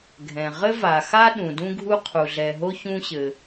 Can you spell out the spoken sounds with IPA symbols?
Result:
ɡʱɛ̃˩ ʁɘ˥va˩xa˥ ɗũ˩dũ˥ɡʱu˥qʰu˩ ɮɛ˩ɦo˥ çũ˥ɕɘ˩

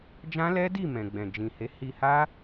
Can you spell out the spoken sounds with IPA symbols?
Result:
d͡ʒã˦lɛ˦di˦˨ mɛ̃˨ɡ͡bɛ̃˨d͡ʒĩ˨he˨˦ hi˧ha˦

